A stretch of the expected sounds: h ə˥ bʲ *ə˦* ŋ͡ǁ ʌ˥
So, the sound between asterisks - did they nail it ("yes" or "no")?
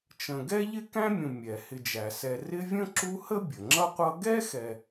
no